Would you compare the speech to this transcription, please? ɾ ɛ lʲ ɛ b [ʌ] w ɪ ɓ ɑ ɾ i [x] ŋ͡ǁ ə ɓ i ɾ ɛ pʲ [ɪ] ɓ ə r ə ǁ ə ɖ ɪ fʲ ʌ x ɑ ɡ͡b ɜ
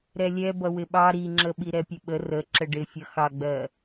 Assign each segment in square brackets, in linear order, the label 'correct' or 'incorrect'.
correct, incorrect: none, incorrect: ə

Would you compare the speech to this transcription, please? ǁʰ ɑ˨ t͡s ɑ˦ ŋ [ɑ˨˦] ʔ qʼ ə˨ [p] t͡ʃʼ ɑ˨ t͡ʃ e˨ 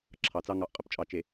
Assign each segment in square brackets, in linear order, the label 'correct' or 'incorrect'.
incorrect: ɑ˨, correct

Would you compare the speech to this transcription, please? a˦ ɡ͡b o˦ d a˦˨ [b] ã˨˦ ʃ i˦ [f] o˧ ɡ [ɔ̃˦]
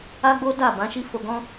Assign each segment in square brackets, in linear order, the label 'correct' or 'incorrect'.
correct, correct, correct

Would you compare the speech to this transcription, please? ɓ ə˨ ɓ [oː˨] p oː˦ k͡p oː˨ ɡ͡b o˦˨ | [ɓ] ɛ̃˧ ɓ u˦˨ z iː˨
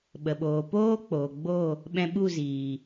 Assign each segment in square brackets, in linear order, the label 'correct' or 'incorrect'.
correct, correct

